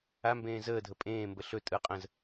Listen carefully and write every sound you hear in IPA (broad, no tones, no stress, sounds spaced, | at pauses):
a m b ẽː z əː dʱ ə pʼ ẽː m b ə ɬ ɵ tʼ ɯ qʼ ə̃ z